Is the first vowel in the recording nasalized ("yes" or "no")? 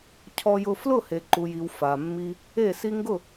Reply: no